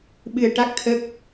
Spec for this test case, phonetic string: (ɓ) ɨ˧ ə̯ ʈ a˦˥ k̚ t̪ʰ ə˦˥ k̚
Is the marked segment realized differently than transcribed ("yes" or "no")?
no